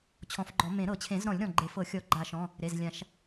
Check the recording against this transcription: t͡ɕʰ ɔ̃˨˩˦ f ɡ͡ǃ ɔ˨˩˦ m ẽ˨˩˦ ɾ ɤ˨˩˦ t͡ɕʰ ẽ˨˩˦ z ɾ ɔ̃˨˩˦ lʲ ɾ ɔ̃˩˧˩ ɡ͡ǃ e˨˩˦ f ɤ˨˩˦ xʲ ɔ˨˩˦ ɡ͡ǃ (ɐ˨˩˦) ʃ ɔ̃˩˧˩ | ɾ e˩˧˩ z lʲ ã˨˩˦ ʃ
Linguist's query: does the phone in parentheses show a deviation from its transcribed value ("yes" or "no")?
yes